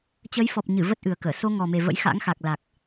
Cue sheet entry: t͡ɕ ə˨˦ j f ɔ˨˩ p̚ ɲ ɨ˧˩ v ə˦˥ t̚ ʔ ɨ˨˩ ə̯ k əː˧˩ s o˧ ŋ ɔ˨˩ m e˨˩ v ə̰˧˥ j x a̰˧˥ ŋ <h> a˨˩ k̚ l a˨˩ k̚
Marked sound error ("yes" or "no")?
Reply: yes